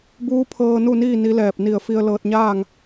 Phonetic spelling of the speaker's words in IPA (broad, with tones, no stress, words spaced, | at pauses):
buː˧˥pʰɤː˧nu˥˨niː˥˨ ni˧˥lɛː˧˩p̚ ni˧˩ə̯fi˧ə̯ lɤː˧t̚ɲaː˥˨ŋ